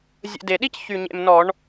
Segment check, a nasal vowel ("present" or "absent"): absent